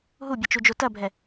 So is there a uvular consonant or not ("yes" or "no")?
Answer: no